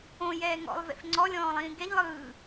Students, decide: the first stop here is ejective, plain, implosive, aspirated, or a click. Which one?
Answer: click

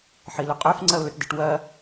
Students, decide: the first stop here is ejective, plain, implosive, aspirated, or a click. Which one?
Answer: ejective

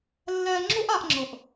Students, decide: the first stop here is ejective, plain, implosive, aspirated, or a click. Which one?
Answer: click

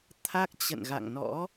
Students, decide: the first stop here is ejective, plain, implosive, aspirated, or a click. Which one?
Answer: aspirated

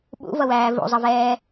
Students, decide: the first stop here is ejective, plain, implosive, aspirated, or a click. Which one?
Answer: implosive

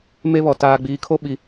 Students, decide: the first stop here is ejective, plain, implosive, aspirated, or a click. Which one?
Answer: plain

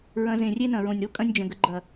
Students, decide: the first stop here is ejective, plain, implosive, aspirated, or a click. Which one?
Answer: ejective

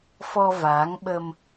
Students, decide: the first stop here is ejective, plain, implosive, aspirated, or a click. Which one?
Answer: implosive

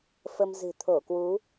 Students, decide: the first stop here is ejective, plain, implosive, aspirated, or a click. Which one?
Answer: aspirated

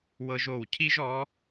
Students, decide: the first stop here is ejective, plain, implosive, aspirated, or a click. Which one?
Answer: aspirated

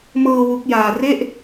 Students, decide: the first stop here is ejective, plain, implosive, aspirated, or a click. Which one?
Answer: plain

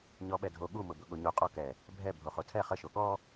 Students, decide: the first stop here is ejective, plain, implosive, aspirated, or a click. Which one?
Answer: implosive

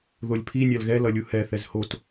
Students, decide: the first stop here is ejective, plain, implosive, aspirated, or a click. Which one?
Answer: aspirated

